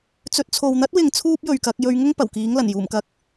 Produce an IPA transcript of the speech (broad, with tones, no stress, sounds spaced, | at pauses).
t͡s ɵ˨ t̚ t͡sʰ o˨ w n̪ ɐ˥ t̚ w ɪ˨ ŋ t͡sʰ uː˥ p̚ j ɵ˨ ɥ k ɐ˨˥ k̚ j ɵ˨˧ ɥ ŋ ʊ˥ ŋ p ɐ˨˩ w k iː˨˥ ŋ l ɐ˨˩ n j uː˨˩ m k ɐ˨ k̚